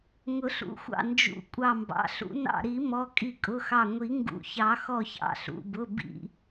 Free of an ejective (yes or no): no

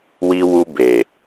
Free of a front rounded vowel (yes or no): yes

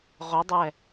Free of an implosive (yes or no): yes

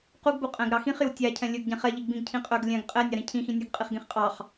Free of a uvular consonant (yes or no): no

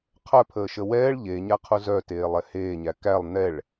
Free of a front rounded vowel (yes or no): no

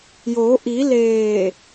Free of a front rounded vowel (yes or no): yes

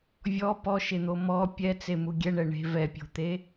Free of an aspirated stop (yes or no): yes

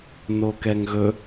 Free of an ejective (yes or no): yes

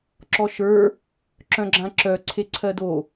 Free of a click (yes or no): no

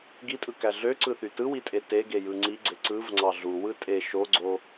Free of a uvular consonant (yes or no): yes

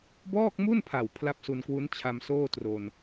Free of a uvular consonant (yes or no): yes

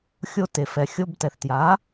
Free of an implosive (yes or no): yes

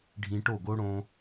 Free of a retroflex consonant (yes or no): no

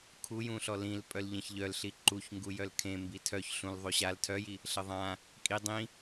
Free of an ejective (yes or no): no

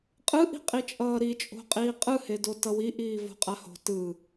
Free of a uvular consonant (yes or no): no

